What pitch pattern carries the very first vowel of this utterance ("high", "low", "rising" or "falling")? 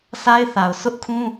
high